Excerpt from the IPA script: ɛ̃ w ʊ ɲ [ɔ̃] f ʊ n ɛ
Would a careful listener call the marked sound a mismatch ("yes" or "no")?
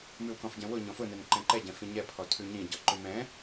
no